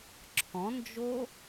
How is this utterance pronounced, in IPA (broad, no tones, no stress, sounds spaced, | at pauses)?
ǁʰ ɔ̃ n d͡ʒ o